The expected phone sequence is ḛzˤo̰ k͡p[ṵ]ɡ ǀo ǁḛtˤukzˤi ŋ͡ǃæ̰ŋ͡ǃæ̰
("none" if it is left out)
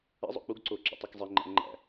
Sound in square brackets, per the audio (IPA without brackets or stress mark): u